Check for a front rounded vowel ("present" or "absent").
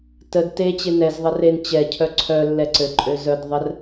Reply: present